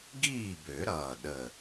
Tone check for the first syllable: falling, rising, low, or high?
falling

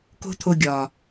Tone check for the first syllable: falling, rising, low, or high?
high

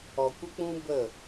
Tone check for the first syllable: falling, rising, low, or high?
low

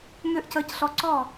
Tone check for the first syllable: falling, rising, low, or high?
high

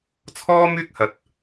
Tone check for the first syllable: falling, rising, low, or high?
high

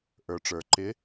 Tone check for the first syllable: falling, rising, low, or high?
low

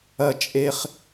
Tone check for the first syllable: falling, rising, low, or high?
low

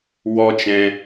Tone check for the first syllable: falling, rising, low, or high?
high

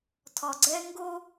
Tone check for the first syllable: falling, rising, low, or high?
low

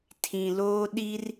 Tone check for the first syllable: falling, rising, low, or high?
low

